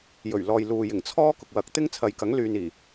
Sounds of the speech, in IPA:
jɵ˨˩ɥlɔː˨j luː˨jɪ˨˩ŋ t͡sʰɔː˥ kʊ˨k̚wɐ˨˥k̚t̪ɪ˥ŋ t͡sʰɐ˨jkɐ˨˥ŋlyː˨niː˨˩

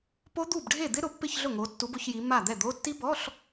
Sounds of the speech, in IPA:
po˦˥d̪u˥˩b ɖʱe˥˩d̪ɪ˦˥ ɾʊ˨˦pːɪ˥˧çɮʊ˥˩ŋo˨˦ tːu˨˦bʊ˨˦çji˨˦ ma˥˩d̪ɛ˥˩d̪o˧˥˧ tːi˦˥bɔ˧˥˧ɬ

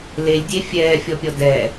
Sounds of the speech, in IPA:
lelʲdʲe fʲɛːfʲɔpʲɔ dɛ

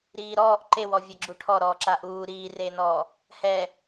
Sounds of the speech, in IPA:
ɾiːɾɔːʔ ǃewɔ vʲɛɡ͡ǁuʈʰɔ ɾɔːǁaʔuː ɾiːreːnɔː | hɛ

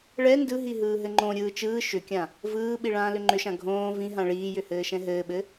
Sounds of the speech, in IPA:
ɭɛ ndɯɦi ɦɯːɦɘŋ͡ǃõ ɾʲɯːt͡ʃɯː ʃʏkʲã | vɯːɓiɭãː lʏŋ͡ǃʏʃã ɡʱõː vĩɦã ɭiːjʏhɘː ʃɛ̃ɦɘːɓɘ

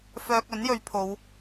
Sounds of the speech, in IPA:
fœː˥k̚ ɵ˨˥njɵ˨˧ɥpʰo˨˧w

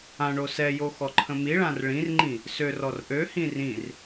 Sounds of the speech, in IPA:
ãɳo sɛjo xɔǃʰə̃miɭãr ɭĩrŋ͡ǃĩ | sørɔr ʔøhĩ rĩr

